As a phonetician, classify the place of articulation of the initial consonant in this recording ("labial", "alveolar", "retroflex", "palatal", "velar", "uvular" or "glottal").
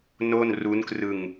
alveolar